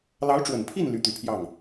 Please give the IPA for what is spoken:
lɑ˧˥ʊ̯ʈ͡ʂwə˨˩npʰi˥˩n ly˧˥t̪y˨˩pʰjɑ˥˩ŋ

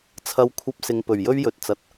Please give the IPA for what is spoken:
t͡sʰɐ˧wkʷʰɐ˧p̚sɪ˨ŋ pɵ˨˩ɥjɵ˥ɥjɵ˨t̚t͡sɐ˨t̚

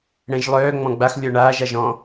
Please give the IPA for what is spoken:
ɽɛ̃ʒlˠœː ŋ͡mɔ̃ɡ͡bax lʲɔɳaːʒaʒ ɔ̃

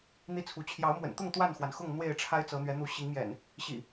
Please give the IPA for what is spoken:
n̪i˦t͡sʰu˨˦ t͡ɕʰjɑ˨˦ʊ̯mwə̰˨˩nt̪ʊ˥˨ŋ t̪wa˥˨nxwa˩nxʊ˥˨ŋ n̪we˥˨ɪ̯ʈ͡ʂʰa˦ɪ̯t͡sɤ˨˦n̪ɥɛ˨˦ n̪u˨˦ɕi˨˦ŋmjɛ̰˨˩n | ɕḭ˨˩

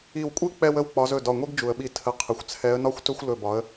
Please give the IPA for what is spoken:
i˧˩wkʷʼi˦ k͡pɛ˦wə˦w k͡pɒ˨˦zɵ˩˧˩dɒ˧˩ŋʷi˦ɡ d͡ʒu˩ə̯ɓi˧˩ tʰə˨˦ qʰə˩˧˩xʷt͡sʰɛ˨˦ə̯nɒ˦xʷtɵ˦xʷ lɵ˧˩bɒ˨˦ə̯

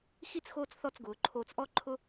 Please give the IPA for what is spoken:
xi˥˧t͡s xoː˥t͡sθɔ˥˧t͡s ɡʊː˩˧ǃʰoː˧t͡s ʔɔ˥ǃʰʊ˥

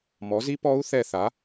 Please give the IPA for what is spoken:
mɔ˨˦zi˦˥ pɔ˦˥u̯ θɛ˦˨θa˨˦

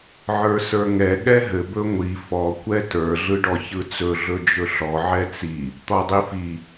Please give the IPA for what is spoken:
ʕə˞sə˞ŋɛ ɠɛɦɘ bɵŋʷi fɔ kʷɛtə˞ ɮɯɖɔçɯt͡sɵ ɮɵd͡ʒɵɬɔ ʕɛt͡si | t̪ɔdˤifi

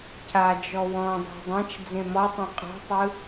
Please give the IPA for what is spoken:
cʰad͡ʒɔ wɔ̃dˤo̤ dˤãt͡ʃ d͡zẽmɔtˤɛ̃ qʼɔ̤tˤɯ

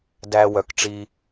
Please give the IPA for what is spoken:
dæ˧ wœ˨kʈ͡ʂi˧

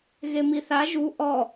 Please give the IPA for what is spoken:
ɣemiθa ʒu ʔɔ

